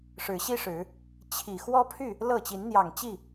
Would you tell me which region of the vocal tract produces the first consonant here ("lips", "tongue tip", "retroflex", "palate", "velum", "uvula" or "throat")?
retroflex